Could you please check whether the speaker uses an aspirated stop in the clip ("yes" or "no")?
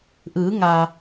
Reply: no